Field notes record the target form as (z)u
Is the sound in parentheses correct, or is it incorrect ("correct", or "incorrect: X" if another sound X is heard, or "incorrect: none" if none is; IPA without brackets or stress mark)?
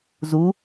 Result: correct